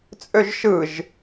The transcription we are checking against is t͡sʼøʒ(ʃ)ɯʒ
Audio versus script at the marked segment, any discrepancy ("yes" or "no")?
no